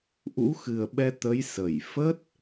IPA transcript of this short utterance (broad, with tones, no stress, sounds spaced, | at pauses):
ʔ ṵ˧˥ x ɨ˨˩ ə̯ ɓ ɛ˧ t̪ ə˨˦ j s ə˧˩ j f ə˦˥ t̚